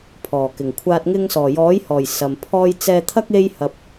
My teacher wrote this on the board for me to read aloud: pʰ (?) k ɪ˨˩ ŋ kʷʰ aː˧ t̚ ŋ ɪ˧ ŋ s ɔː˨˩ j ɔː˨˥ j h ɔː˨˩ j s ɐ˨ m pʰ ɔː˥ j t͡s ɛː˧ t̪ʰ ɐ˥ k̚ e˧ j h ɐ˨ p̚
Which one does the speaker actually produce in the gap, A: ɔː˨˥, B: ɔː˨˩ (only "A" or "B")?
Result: B